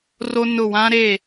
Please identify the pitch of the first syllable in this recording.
high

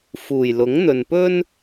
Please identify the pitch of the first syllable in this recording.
low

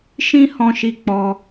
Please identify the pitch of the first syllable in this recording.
high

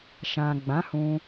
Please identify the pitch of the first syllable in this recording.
low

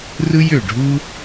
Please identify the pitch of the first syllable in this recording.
high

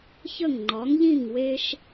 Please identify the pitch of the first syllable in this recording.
falling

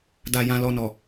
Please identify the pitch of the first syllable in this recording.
low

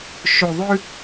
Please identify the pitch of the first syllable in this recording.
low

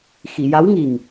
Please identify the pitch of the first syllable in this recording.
low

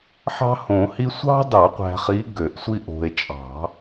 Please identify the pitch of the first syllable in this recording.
high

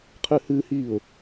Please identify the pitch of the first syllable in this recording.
high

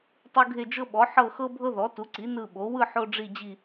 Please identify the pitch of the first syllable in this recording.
high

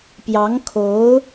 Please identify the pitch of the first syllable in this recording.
rising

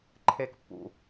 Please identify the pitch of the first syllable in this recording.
low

